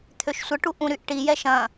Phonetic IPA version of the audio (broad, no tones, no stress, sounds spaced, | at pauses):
t̪ʰ ø ʃ sʷ ə ʈ u ʔ ũ ɾ y ʔ ʈ i j ɛ ʃ ɐ̃